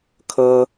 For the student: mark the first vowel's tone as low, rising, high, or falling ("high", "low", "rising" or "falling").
high